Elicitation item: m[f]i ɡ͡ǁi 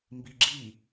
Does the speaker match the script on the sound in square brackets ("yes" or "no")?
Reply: no